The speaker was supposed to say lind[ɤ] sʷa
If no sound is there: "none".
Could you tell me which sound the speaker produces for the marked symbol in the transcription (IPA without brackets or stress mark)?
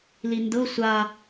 ɤ